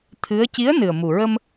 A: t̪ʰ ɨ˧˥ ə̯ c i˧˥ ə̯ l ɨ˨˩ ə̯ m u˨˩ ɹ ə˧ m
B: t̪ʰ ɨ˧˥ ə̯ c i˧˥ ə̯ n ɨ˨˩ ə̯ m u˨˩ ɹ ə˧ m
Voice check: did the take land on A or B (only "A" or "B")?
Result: B